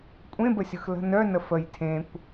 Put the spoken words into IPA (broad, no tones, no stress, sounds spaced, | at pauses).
kʷʼ ẽ b ə sʲ ɯ x l ə̤ n œ n ə f ə j tʰ ẽ kʷ